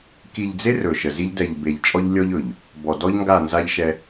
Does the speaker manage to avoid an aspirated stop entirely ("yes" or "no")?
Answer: yes